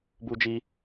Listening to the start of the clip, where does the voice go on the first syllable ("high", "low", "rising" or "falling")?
high